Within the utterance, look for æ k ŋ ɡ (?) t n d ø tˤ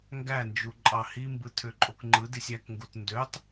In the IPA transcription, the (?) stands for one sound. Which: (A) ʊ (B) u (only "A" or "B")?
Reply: B